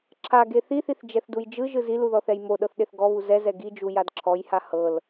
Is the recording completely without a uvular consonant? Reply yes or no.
yes